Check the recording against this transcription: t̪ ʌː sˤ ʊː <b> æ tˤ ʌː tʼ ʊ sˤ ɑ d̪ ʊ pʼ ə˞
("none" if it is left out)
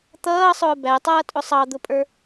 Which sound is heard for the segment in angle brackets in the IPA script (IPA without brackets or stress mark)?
b